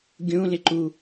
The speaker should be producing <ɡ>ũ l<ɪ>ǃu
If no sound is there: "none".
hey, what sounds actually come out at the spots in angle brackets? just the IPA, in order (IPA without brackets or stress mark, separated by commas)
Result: ɡʲ, ɪ